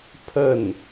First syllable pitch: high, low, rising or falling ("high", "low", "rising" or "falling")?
falling